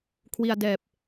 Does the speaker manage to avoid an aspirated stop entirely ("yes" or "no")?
no